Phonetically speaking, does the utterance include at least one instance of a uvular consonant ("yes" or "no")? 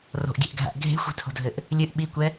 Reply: no